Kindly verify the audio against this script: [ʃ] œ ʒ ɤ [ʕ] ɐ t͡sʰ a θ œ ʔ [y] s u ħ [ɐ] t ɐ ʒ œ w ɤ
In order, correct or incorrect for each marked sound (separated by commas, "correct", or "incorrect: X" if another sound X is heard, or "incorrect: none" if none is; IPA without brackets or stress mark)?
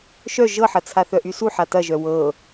correct, incorrect: ħ, correct, incorrect: a